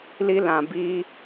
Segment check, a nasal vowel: present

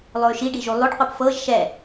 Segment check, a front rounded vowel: present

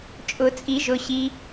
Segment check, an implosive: absent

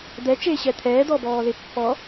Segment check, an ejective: absent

